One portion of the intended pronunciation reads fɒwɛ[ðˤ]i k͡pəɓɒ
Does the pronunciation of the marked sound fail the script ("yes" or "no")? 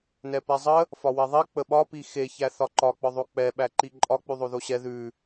no